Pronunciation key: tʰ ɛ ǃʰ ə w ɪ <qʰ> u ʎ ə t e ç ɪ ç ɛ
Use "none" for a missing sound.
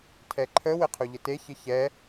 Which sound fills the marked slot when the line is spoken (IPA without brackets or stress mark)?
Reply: qʰ